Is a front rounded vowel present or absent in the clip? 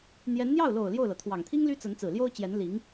present